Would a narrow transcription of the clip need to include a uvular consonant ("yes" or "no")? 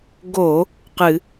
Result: yes